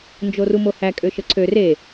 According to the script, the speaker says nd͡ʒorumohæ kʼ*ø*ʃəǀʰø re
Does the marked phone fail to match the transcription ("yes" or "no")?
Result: no